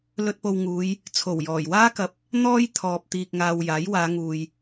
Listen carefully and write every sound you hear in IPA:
l ɵ˧ t̚ p o˧ w ŋ uː˨˧ j | t͡sʰ o˨˩ w j ɔː˨˩ j w aː˥ k ɐ˨ p̚ | n̪ ɔː˥ j t̪ʰ ɔː˨ p̚ t̪ iː˨ k̚ ŋ aː˨ w j aː˨˥ j w aː˨˧ ŋ uː˨ j

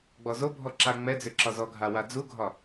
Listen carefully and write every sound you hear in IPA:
ɡ͡b ɔ z o bʱ ɔ ǁ a ŋ͡m ɛ d͡z ʏ ǁ ɒ z ɔ ɡʱ a w a d͡z u ɡʱ ɒ

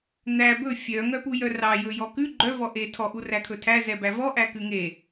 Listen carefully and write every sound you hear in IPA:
n̪ æ b ɵ fʲ œ ŋ œ p u j œ r ɑ j ɵ j ɔ k ʉ ɡ͡ǃ œ v ɔ ʔ e tʰ ɔ ʔ u r æ kʰ ɵ tʰ æ z ɛ b æ v ɔ ʔ æ k ʉ ŋ e

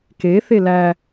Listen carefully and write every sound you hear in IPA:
k e θ e l æ

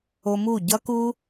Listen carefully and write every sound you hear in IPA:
o˧ m u˦˨ ɟ ʌ˦ k u˦

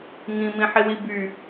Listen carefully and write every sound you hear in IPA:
ŋ ĩ m ĩ ħ i w i b y

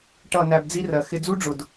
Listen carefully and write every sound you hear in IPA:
ʈ ʌ˦˨ n æ˧ b d͡z i˦ r ɜ˨ x ɪ˧ d͡z u˦ ɖ͡ʐ ʊ˨ d

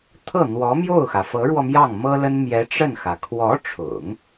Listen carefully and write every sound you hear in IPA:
t̪ʰ ɤ˥˩ n̪ w ɔ˧˥ m j o˥˩ ʊ̯ x ä˩ f ɤ˧˥ ɻ w ɔ˧ m j ɑ˥˩ ŋ m ɤ˥ l ə˥ n m j ɛ˧˥ ʈ͡ʂ ə˥˩ n x ä˩ kʰ w ɔ˧˥ ʈ͡ʂʰ ʊ̰˨˩˦ ŋ

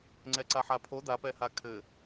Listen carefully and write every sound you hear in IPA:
ŋ͡ǀ ɛ ǀ a ħ a pʰ o d a p ɛ h a kʰ ɘ

